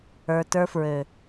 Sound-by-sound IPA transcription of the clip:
ə˞˧tə˞˦fɹø˨

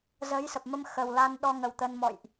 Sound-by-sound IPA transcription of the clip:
zə˨˦jsə˨˩p̚mə˧m xə˨˩wla˧n ɗɔ˧ ŋə˨˩w t̪ə˧nmɔ̰˧˨jʔ

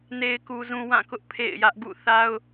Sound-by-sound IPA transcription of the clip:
ne˨ɪ̯ku˨zũ˨ wã˦˨kʊ˦ʔ pʰḛ˦˨ɪ̯jä˦ʔ ɡṵ˦˨θa˦ʊ̯

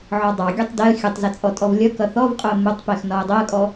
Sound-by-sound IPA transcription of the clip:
ʕɔdˤɑɡʲɒtˤ dɛə̯ xʲʊtˤzə t͡sʼɔtʼɔvlʲʌkʌ θɔvqʼʊə̯ mʊtˤpɛx nɒə̯dˤɜkʼɔ

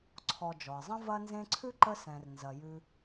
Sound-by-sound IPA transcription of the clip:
ǀʰɔ˨ d͡ʒɔ˩ɪ̯zˤɐ̃˦ vɐ˦nzẽ˦ǀʰʉ˥ ǃə˦sɛ̃˩r nzɐ˩jʉ˨

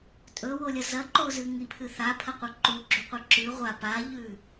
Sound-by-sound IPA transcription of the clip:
tʼɵwolʲɐ zɐǃozɨ ŋipʰɨ θapʰɐqʷɐ ǃuɡ͡ǁuqʷe ǁʉ ʁʷa paʎʉ

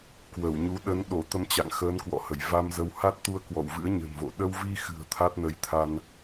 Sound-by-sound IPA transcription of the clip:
kwə˧˩wɲu˨˦ ɗə˨˦nɗo˧˩ t̪ə˧mt͡ɕa̰˧˨ŋxəː˨˦n kwɔ̰˧˨hə˧˩j va˧mzə˨˦w ha˦˥t̚t̪u˧ə̯ kwɔ̰˧˨w vɨ̰˧˥ə̯ɲə̤˨˩nvo̰˧˨ ɗə˧wvi˧xɨ̤˨˩ə̯ t̪ʰa˦˥t̚nə˨˦jt̪ʰa˧n

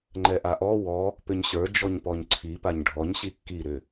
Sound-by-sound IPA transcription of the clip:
ŋ͡ǃɛʔaʔɔ wɔ | pʏɲɕə˞ d͡ʒɔɲpɔɲǀʰi paɲɖʱɔɲ ɕikːi ɾʏ

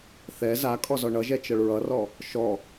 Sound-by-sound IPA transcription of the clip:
θɛ za kʼɔzɔɳʌʒɛ t͡ʃʌɭɹʌrɔ | ʃɔ

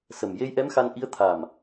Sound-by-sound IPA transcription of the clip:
sə˨˩m je˧jʔɛ˧˥mxa˧nʔi˧˥ə̯ t̪ʰa˨˩m

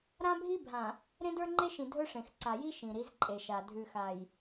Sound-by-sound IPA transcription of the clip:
ɾã˦bʱi˦ bʱã˨ | ɾẽ˦də˞˦ŋ͡ǃe˦ʃĩ˨ dʱɵ˦ʂẽ˨x ǀa˨ji˦ ʃĩ˨ ɾi˨˦zǃʼe˨ʃa˨ dʱʉ˨xa˨j

